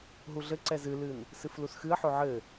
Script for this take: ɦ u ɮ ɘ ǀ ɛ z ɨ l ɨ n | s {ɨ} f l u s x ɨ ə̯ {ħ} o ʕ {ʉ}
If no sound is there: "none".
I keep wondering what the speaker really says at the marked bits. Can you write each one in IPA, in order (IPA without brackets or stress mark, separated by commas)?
ɨ, ħ, ɘ